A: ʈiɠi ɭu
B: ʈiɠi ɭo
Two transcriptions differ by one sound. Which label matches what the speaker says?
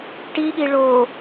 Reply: B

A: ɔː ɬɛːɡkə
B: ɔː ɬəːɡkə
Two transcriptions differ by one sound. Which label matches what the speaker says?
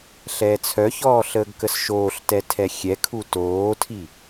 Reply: B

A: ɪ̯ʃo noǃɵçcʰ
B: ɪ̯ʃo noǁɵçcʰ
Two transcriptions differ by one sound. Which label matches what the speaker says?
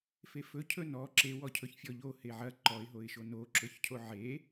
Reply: B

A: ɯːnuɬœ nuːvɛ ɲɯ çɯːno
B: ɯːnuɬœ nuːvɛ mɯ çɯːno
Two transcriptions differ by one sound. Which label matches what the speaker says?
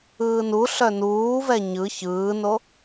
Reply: A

